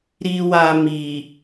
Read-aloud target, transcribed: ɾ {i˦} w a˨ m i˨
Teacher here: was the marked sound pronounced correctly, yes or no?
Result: no